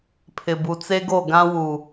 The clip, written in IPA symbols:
pʰ ɪ˨ b u˨ t͡s e˦ ɡ o˦˨ ɡ ã˦ w u˨

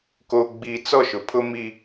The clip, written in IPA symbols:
k o˨ ɡ͡b i˨ t͡s ɔ˦˨ ʃ ʊ˨ pʰ ʊ˦ m i˦

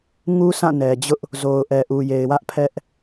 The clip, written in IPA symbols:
ŋ u˦ s ã˦˨ n ɛ˨ d͡ʑ ʊ˦ ʔ | z o˨ ʊ̯ ʔ ɛ˨ ʔ u˨ j e˨ ɪ̯ w ä˦ ʔ pʰ ɛ˦ ʔ

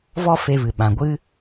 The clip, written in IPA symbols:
v ɔ˦ f e˧ v ɨ˨ ɓ ã˨ ɡʷ ɨ˦

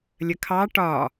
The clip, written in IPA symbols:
lʲ ə kʰ ɑ ʈ ɒ

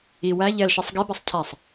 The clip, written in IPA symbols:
i w æ ʎ ɛ l ʃ i sˤ ɡ i b ɛ sˤ cʰ æ sˤ

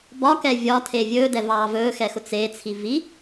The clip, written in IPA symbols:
b ɒ k ɛ vʲ ɒ tʰ e vʲ ɵː d ɛ v ɑː v ɵː x ɛ x ʊ t͡s e t͡sʰ i v i

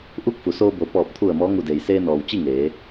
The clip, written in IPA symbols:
ʔ u˥˨ k̚ f u˩˧ s oː˧ b o˩ p ɔː˧˩ p̚ t̪ʰ u˧˩ ə̯ m ɔː˧˥ ŋ u˧˩ d eː˩ j s eː˧ n ɔː˩ w t͡ɕ i˥˨ ŋ eː˩˧

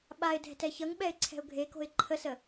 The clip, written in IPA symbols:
ɓ a ɪ̯ dʱ ɛ̤ t ɛ ç ʌ ŋ ɓ ɛ ɪ̯ ǀʰ ɛ̤ ʊ̯ ɡʱ e k o̤ ɪ̯ ǃʰ ə s ə

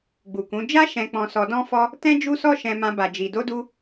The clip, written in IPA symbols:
ɡ͡b u˨ k ũ˨˦ d͡ʒ a˦ ʃ ɛ̃˧ k͡p ɔ̃˧ s ɔ˧ d ɔ̃˦ f ɔ˦ | t ɛ̃˦ d͡ʒ u˦ s ɔ˦ ʃ ɛ̃˧ m ã˧ b a˨ d͡ʒ i˨ d o˧ d u˧

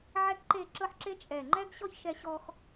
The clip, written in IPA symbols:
ʕ ɛ˥ k ǃ e˥˧ ǁ ɤ˥ ħ ǁ e˥ t͡ʃʼ ɛ˧˩ ŋ͡ǃ ɛ˥ ɡ ɕ ɔ˥ ç ʃ ɛ˧ ɕ ɔ˧ x

